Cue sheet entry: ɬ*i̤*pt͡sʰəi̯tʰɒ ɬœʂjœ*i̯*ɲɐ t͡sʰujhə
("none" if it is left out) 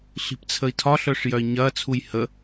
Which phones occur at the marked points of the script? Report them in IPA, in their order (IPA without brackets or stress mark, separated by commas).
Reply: i̤, i̯